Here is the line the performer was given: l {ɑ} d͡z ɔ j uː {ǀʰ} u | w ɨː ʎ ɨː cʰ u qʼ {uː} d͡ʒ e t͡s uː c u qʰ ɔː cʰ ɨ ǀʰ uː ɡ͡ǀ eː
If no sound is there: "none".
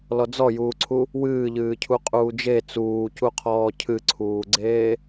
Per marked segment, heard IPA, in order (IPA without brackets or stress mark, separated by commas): ɔ, ǀʰ, uː